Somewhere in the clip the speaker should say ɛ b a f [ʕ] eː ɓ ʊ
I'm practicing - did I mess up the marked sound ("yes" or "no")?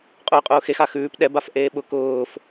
yes